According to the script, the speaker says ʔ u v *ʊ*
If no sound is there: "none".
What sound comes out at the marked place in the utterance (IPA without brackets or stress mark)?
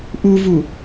u